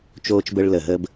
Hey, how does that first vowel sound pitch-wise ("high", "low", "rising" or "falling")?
high